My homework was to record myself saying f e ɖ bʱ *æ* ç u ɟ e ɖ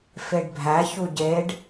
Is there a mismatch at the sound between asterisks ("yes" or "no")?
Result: no